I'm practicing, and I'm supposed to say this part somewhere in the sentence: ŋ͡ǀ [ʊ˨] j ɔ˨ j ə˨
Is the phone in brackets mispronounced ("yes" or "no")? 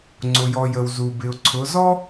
no